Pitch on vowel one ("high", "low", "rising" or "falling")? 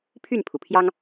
falling